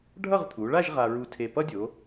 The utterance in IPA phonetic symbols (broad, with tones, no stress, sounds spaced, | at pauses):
ɖʱ ʌ˥˧ ʁ t̪ʰ u˩˧ ɭ a˥˧ ʒ ʁ a˧ ɹ u˧ tʰ e˧˩ p ʌ˥ dʲ o˩˧